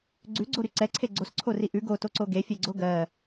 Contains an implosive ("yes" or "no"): no